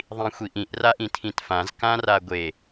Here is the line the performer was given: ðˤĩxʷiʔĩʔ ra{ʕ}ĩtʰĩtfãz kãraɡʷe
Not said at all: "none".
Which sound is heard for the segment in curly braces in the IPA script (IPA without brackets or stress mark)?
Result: ʔ